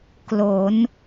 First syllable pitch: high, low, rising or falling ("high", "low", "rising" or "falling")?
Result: rising